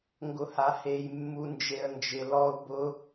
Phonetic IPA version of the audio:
ŋɡʊhahej mːund͡ʒeə̯nd͡ʒɪ lɔʊ̯ bʊ

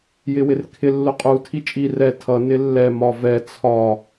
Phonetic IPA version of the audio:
jɪwɪrkʰɪ lːʊqʼu tʰit͡ʃʼi rɛ tʰʌ nɪlːɛ mɒvɛ t͡sʰɒ

